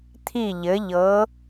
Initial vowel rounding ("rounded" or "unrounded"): unrounded